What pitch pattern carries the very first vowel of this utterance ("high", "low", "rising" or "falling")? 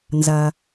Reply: low